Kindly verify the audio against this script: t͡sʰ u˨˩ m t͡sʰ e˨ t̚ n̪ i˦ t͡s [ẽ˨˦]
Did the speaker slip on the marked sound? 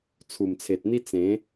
no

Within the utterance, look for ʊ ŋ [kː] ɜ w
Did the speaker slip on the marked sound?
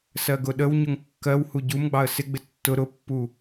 no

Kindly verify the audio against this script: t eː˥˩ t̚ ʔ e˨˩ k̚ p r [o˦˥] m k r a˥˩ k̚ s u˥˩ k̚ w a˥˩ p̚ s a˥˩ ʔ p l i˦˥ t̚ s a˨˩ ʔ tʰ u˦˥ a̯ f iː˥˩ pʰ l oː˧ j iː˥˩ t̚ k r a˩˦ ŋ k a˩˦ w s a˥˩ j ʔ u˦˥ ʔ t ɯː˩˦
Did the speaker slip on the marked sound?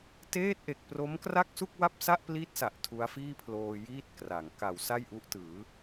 no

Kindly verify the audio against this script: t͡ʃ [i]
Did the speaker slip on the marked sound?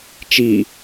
no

